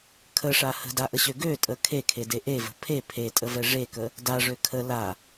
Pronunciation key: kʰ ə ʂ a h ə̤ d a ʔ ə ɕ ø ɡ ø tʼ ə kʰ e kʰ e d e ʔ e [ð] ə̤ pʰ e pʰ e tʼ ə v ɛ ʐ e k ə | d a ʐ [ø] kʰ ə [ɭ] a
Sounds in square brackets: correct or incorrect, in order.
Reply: incorrect, correct, incorrect

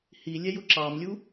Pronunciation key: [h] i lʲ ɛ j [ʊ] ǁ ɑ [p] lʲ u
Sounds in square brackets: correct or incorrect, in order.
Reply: correct, correct, incorrect

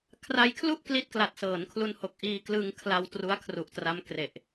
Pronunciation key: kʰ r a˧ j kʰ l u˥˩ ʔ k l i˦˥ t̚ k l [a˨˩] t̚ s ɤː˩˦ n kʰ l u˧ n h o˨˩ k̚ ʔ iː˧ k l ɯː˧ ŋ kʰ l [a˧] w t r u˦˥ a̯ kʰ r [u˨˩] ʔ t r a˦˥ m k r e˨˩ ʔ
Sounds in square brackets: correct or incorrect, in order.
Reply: correct, correct, correct

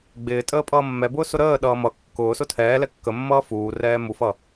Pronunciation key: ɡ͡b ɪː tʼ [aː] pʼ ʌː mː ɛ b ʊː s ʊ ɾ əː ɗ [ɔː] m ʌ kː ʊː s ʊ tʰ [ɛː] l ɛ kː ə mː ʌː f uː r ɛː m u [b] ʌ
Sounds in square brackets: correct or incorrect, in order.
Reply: incorrect, incorrect, correct, incorrect

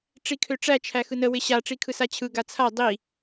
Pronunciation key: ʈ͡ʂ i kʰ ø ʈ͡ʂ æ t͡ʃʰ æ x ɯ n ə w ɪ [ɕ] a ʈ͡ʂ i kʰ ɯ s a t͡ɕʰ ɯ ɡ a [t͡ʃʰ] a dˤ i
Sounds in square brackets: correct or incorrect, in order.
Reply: correct, incorrect

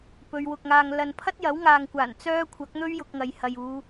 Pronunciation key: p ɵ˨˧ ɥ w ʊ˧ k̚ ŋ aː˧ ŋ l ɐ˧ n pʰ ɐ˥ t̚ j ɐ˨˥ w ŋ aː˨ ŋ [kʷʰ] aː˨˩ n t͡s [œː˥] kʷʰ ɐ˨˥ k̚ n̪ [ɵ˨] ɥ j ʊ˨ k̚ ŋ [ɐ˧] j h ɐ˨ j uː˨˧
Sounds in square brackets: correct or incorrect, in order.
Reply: incorrect, correct, incorrect, incorrect

